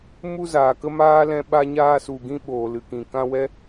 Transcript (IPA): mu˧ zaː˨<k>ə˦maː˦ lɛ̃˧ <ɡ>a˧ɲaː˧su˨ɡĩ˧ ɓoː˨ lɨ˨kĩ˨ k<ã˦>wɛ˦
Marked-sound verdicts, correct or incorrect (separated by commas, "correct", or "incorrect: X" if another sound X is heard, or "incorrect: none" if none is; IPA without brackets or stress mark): correct, incorrect: ɓ, incorrect: ã˧